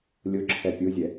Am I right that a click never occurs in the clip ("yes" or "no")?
no